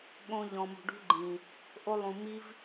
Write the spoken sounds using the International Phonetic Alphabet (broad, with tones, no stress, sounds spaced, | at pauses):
ɠ õ˧ ʎ ɔ̃˨ m ṳ˨ ɖ ṳ˦ ɡ͡ǃ ĩ˨ | ʔ o˧ lˠ ũ˨ m i˦ v